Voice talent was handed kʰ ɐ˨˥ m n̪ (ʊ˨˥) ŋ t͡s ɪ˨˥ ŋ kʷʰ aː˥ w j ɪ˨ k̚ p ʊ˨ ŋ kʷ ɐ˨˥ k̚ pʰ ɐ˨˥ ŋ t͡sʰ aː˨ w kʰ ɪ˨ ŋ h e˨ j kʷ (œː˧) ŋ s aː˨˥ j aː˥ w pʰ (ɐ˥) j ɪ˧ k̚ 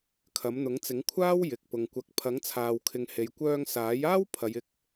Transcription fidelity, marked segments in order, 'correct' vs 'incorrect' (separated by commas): correct, correct, incorrect